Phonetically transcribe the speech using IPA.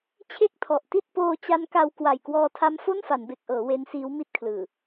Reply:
t͡ɕʰe˥˩k̚tʰɔ˨˩ʔti˥˩t̚ poː˧t͡ɕa˦˥n ka˧w kwa˨˩jkwɔː˧tʰa˦˥m fo˥˩nfa˩˦nbe˨˩k̚ʔɤː˩˦ we˦˥nsiː˦˥w mi˥˩t̚kʰlɯː˨˩

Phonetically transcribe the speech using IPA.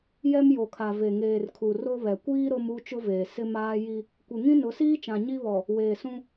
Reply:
jɛ˦mjo˨kʰa˨ ve˨ŋeː˨rkʰu˨ ro˦βɛ˨ kʷiː˦ ɾo˦mu˦ t͡ʃʊ˦veː˨ sɪ˦maː˦ ji˦ | kʷe˨ŋĩ˦nʊ˨˦siː˦ t͡ʃã˨ɲi˦βɔ˨ | weː˨sũ˦

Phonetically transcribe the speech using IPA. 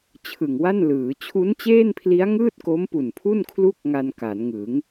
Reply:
t͡ɕʰɯ˨˩ŋwa˥˩nlɯː˩˦ t͡ɕʰu˦˥nt͡ɕeː˥˩npʰli˦˥a̯ŋɯː˥˩t̚ ko˦˥mpu˨˩npʰu˥˩nkʰlu˥˩k̚ ŋa˧nka˩˦nŋɯ˩˦ŋ

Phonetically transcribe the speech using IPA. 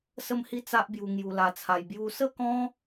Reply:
sə˥˧mhi˥˧ t͡sa˦ʔbju˧ ŋju˧la˧t͡sʰa˧j bju˧sə˥˧kɔ̃˦

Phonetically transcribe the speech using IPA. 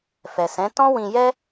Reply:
fɛ˨sɛ̃˨˦ tɔ̃˦wĩ˧jɛ˦

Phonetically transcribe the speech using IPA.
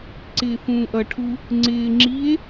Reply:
ǀɪːfũːʔʌʈʰu | ŋ͡ǀɪːŋ͡ǁie̯

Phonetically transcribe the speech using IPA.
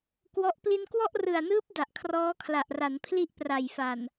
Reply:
kwɔ˦˥ʔ pli˧nkwɔ˥˩ʔrɯ˨˩a̯nɯː˦˥p̚ da˨˩ʔkʰrɔː˦˥kʰla˨˩ʔra˩˦n pʰli˥˩ʔpra˨˩jfa˨˩n

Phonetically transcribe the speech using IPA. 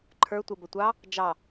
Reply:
ǃʰə˞ tʷəbə tʷɑ | d͡ʒɑ

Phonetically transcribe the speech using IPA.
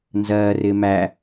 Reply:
nzɜːrɪː mæ

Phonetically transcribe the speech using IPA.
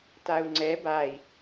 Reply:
tau̯ŋ͡ǀɛ bai̯

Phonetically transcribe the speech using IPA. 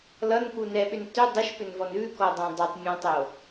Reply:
lʌnku nɛɓʏn tʏ dˤʏʃpʏnvɔn ʉkɔdˤũ dˤʏtˤmʲɔ̃tˤo

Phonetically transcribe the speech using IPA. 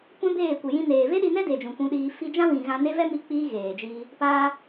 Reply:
kʷɛ̃˦beː˦˨ kʷi˨jĩ˧neː˨ ve˦ɗi˧nɛ˦de˨ d͡ʒũ˨kʷũ˧ɗiː˧ fi˧d͡ʒã˦wĩ˨ ɣã˧ne˦vɛ˦ mi˧ k͡piː˦ɣeː˨d͡ʒiː˧ | paː˦

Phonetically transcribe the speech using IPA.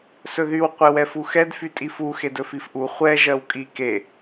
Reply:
sɵðyw qʷewɛfuxɛd fytʼifu xedɵfifʔu χʷɛ ʒɜwkʼi ke

